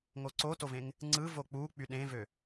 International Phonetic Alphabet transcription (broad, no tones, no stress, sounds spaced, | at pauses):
ŋ o ǀ o t o v ẽ ŋ | ŋ͡ǀ ɯ v o k͡p u k͡p y ɗ ẽ v ø